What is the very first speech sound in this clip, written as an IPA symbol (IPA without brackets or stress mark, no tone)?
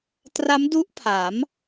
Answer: t